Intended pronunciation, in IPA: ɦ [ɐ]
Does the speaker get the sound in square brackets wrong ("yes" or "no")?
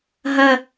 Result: no